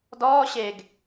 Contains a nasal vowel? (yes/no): no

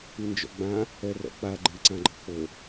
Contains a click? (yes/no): yes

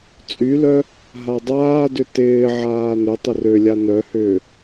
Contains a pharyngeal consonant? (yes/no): yes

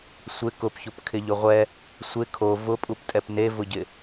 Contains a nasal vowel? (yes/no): no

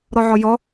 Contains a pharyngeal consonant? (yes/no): yes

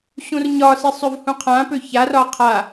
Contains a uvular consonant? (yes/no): yes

